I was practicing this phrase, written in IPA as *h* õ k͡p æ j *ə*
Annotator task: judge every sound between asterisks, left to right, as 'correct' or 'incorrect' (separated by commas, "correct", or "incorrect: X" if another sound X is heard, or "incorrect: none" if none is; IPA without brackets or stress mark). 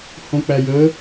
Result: correct, correct